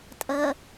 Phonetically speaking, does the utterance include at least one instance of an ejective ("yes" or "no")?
yes